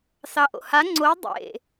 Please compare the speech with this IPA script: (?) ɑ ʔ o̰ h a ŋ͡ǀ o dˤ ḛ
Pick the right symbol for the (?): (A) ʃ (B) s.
B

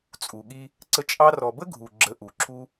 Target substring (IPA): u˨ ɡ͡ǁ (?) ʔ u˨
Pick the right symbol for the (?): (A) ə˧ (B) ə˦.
A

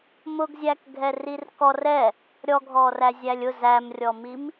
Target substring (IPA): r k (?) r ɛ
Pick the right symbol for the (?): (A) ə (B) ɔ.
B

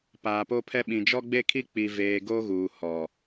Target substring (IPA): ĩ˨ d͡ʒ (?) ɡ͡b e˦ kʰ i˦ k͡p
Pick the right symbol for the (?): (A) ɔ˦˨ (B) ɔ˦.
B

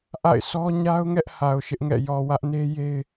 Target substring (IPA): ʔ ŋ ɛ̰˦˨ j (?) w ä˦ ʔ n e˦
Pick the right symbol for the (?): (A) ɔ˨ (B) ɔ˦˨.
A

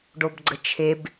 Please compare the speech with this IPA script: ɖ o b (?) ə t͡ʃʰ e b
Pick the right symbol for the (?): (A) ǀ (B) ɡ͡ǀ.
B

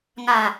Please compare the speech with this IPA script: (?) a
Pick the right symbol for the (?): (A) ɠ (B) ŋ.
B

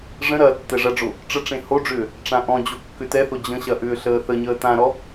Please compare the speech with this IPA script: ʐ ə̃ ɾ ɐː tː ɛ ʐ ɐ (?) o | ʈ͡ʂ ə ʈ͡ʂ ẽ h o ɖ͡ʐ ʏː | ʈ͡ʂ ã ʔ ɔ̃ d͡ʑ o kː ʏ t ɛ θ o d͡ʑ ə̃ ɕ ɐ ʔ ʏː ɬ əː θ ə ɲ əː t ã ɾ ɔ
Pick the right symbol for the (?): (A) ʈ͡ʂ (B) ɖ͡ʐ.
B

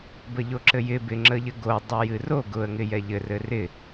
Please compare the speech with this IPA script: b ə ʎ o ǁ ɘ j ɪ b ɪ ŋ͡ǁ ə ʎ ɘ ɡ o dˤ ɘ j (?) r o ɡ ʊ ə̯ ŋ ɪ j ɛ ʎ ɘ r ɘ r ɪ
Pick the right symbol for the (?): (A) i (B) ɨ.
B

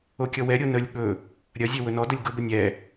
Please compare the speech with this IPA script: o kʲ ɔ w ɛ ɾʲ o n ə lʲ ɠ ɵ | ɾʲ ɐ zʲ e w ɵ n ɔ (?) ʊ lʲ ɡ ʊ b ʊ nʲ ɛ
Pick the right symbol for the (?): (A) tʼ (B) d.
B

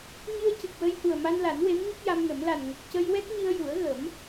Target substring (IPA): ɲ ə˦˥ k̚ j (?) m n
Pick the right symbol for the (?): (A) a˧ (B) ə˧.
A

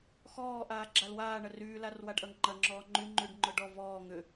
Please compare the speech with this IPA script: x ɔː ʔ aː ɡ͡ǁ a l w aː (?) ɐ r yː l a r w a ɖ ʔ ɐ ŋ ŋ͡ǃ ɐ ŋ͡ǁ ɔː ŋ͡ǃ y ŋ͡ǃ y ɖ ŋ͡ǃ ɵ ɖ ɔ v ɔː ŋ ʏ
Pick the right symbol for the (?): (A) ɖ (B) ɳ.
B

